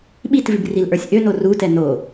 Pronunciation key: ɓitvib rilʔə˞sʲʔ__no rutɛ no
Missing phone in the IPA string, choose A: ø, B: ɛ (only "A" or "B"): A